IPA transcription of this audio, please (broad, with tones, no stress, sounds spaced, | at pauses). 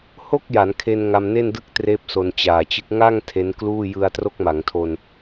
h o˥˩ k̚ j a˩˦ n kʰ e˧ n ŋ a˧ m n e˥˩ n d ɯ˥˩ k̚ t r eː˦˥ p̚ s o˧ n t͡ɕ aː˨˩ t͡ɕ ɯ˦˥ k̚ ŋ a˥˩ ŋ tʰ e˦˥ n k l uː˥˩ j ɯ˧ a̯ t r o˦˥ k̚ m a˩˦ ŋ tʰ o˧ n